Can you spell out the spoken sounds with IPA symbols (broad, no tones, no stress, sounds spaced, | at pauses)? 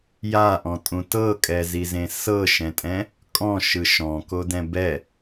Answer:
j a ʔ ɔ̃ tʼ ũ t ɤ kʼ ɛ z i z ẽ s ɤ ʃ ɛ̃ tʼ ɛ̃ | kʼ ɔ̃ ʃ ɯ ʃ ɔ̃ k o d ɛ̃ b ɛ